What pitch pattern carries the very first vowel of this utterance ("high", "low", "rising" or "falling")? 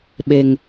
low